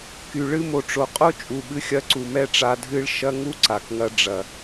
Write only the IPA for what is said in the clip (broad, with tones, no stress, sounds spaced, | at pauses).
k y˨ ɭ ɨ˧ m o˨ ʈ͡ʂ o˨ qʼ o˦ t͡ʃʼ u˨ ɓ ɨ˧ xʲ ɐ˧ ǀ u˨ m ɛ˦ ʈ͡ʂ a˧ dʱ ɨ˦ ɭ ʃ ɐ˦ ŋ u˦ ǀ a˨ k ŋ ɐ˦ ɖ͡ʐ ɐ˨